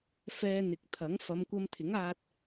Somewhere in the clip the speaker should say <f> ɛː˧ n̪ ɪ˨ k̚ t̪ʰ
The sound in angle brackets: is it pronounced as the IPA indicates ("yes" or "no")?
yes